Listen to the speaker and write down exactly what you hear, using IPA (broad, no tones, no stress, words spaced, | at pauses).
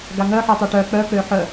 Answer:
ɡaŋœ ħitˤiʈœ k͡pœ k͡pøħœ